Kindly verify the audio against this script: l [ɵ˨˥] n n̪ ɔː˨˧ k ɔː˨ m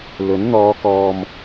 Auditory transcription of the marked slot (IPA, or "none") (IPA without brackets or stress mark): ɵ˨˥